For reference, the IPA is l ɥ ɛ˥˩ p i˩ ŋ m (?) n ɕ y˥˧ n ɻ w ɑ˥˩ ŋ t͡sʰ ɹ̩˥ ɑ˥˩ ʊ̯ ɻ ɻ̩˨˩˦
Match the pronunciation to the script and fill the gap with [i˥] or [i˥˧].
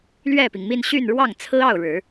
i˥˧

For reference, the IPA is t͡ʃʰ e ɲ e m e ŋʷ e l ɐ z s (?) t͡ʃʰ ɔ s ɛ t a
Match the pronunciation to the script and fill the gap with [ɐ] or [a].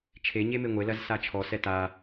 a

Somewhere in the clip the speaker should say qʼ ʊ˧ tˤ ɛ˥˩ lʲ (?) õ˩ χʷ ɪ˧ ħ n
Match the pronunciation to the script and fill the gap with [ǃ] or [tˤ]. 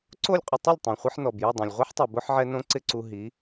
tˤ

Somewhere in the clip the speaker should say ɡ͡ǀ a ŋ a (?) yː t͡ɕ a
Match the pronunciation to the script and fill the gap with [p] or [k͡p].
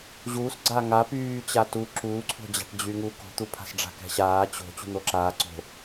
p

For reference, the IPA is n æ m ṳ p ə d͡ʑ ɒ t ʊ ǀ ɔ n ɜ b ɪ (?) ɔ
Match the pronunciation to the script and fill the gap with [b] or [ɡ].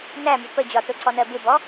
b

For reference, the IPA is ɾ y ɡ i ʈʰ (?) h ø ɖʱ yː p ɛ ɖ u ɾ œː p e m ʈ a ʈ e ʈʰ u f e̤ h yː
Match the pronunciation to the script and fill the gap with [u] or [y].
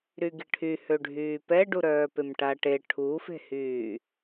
y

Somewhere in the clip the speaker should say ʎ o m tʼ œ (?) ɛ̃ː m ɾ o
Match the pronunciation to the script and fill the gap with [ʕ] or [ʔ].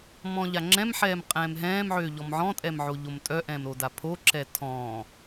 ʔ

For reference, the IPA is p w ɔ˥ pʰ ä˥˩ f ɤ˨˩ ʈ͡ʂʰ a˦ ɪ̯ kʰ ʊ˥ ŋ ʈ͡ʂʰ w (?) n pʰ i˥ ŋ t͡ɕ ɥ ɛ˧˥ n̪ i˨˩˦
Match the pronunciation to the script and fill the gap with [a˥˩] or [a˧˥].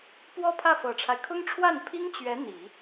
a˥˩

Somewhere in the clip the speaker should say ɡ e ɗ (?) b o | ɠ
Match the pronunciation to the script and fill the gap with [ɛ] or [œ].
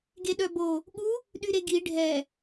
œ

